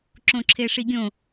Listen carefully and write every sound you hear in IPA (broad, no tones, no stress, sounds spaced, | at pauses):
ǁ õ ǁʰ e ʂ i ɡʲ õ